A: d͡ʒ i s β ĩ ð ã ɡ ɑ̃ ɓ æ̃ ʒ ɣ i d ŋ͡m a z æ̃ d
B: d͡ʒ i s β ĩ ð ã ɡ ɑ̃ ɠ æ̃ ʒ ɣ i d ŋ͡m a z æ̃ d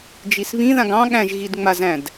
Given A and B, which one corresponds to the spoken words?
B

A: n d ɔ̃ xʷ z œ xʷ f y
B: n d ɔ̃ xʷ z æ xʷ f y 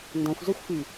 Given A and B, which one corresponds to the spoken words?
A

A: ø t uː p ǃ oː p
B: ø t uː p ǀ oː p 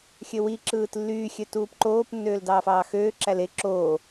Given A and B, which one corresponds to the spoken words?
A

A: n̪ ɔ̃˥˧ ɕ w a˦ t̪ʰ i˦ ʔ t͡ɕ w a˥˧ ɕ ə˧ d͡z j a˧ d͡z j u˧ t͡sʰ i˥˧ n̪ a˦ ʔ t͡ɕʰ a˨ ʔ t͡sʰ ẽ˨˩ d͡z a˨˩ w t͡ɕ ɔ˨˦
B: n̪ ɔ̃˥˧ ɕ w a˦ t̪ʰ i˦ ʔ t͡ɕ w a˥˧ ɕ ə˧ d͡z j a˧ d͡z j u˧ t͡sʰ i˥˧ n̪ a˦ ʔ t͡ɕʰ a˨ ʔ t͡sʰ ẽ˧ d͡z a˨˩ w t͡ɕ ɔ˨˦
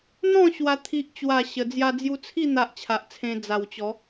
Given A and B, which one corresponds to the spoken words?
B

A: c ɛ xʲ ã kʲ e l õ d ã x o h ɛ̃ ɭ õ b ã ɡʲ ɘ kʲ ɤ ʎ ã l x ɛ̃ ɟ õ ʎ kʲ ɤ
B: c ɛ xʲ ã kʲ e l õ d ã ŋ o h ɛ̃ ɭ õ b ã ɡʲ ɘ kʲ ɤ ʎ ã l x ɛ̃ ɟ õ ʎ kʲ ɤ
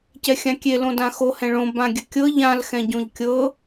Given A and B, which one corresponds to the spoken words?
A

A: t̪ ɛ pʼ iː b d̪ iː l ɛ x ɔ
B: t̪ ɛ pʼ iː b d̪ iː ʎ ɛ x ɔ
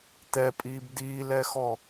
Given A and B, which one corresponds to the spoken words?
A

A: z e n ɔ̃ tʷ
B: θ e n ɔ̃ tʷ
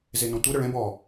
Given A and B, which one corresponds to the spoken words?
A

